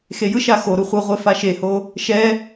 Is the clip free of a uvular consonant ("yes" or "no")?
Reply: no